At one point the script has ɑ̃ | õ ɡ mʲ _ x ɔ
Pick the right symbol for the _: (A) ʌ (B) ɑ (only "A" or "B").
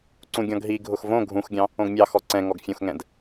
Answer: B